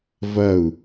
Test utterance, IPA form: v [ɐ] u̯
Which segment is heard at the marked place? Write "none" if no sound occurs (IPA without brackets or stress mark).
ɐ